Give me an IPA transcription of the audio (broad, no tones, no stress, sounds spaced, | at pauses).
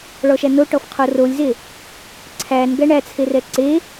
ɭ ɔ ʃ æ n o ʈ ɔ f qʰ o r o lʲ z e | ǀʰ æ n ɡ æ ɳ æ t͡sʰ e r ɛ ǀ e